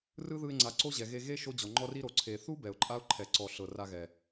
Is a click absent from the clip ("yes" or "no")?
no